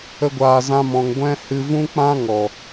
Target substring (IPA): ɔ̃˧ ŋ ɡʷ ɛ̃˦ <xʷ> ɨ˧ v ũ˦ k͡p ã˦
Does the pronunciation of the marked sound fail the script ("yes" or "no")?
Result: yes